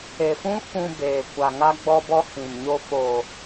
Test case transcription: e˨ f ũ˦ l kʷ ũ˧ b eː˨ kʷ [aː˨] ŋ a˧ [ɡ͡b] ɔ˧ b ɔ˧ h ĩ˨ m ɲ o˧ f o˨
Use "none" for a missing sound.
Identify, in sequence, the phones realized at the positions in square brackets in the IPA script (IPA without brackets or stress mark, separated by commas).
a˨, ɡ͡b